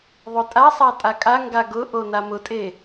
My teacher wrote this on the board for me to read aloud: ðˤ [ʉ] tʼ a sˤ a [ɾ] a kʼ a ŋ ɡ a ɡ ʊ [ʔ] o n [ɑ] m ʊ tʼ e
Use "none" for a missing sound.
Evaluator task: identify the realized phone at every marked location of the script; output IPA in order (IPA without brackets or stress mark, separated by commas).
ʊ, tʼ, ʔ, a